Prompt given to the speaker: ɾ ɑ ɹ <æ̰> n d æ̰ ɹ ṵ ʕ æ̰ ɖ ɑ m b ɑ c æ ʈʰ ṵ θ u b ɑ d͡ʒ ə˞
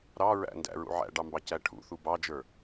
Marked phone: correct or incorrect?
correct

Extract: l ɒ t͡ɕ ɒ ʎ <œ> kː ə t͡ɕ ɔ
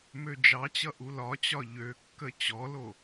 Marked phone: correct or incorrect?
incorrect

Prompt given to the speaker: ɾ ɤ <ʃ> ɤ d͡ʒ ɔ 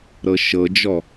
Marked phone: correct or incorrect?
correct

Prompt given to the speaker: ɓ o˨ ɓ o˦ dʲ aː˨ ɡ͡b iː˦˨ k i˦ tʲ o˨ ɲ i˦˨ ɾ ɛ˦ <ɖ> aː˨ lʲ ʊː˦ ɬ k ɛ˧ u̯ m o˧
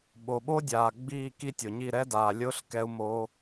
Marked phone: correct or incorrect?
incorrect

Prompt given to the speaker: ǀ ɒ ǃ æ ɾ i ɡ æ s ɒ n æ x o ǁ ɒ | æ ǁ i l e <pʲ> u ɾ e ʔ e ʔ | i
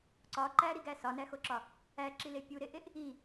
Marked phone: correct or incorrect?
correct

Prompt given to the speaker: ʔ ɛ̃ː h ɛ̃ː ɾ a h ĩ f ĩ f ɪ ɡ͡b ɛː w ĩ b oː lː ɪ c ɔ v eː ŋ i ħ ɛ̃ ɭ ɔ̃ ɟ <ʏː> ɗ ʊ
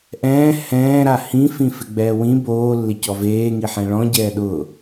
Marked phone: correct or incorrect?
incorrect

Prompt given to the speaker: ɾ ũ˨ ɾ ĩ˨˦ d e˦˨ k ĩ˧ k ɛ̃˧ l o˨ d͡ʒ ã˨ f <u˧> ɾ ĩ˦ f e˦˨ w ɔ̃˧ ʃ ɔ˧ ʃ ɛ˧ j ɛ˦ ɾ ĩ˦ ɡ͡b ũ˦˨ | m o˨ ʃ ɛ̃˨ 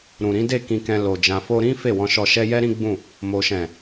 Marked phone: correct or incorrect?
incorrect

